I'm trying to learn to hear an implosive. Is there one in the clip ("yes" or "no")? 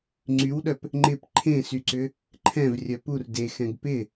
yes